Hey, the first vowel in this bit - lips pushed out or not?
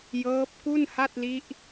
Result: no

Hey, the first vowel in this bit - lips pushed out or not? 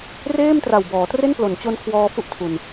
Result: no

